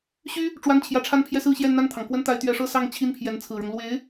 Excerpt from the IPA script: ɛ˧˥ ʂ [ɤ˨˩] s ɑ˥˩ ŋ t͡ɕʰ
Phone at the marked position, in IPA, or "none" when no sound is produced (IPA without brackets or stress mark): ɤ˥